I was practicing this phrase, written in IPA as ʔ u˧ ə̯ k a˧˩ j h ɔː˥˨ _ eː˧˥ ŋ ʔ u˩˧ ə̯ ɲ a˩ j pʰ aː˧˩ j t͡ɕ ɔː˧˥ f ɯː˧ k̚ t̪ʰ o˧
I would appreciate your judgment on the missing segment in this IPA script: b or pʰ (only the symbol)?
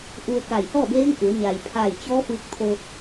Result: b